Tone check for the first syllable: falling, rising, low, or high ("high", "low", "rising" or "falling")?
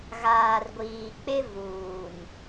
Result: low